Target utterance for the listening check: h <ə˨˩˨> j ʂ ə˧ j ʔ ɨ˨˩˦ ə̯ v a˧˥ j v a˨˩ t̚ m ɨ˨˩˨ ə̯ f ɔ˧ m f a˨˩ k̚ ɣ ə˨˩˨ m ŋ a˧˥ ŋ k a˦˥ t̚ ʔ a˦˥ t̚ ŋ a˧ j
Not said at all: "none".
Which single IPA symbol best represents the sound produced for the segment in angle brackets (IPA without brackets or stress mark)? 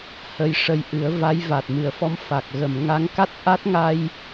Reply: ə˧